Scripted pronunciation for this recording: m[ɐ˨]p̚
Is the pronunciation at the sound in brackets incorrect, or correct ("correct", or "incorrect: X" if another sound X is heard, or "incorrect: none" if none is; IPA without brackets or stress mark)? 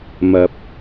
incorrect: ɐ˨˥